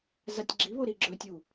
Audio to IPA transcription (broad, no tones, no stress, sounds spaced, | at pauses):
z a tʲ ɡ͡ǁ i β o ɾ i ɡ͡ǁ ɵ tʲ u